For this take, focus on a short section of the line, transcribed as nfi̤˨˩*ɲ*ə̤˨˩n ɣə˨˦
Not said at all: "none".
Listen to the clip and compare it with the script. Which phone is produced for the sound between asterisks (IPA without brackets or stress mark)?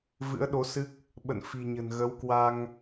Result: ɲ